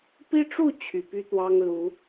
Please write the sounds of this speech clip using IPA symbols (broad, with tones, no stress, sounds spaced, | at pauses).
p i˦ ʈ͡ʂ u˥˨ t͡ɕʰ y˨˩ p y˦ t̪ w ɑ˦ ŋ l u˨˦